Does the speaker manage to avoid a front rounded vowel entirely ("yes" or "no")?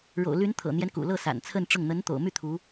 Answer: no